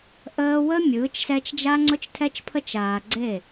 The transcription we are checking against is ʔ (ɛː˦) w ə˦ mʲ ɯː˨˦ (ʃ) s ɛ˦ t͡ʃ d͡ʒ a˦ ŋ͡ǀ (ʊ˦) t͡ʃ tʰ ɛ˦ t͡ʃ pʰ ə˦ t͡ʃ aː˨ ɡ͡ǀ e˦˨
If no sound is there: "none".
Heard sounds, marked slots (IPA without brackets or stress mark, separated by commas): əː˦, t͡ʃ, ʊ˦